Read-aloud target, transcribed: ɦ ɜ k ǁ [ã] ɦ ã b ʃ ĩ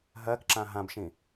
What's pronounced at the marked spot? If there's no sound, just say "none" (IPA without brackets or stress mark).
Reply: ã